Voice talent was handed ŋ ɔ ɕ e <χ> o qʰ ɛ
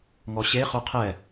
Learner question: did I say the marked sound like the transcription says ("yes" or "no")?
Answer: yes